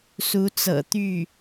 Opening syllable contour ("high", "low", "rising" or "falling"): rising